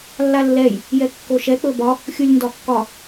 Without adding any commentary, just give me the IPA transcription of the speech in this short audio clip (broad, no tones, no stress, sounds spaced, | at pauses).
lː a lː ɛ j | j ɛ kː o ʃ ɛ k͡p ɵ b ɒ | xʲ u lʲ n d ɒ kː ɒ